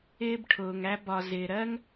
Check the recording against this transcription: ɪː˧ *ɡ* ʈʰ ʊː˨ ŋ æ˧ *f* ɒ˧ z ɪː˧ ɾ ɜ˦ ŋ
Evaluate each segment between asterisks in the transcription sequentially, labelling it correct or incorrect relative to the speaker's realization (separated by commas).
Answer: incorrect, incorrect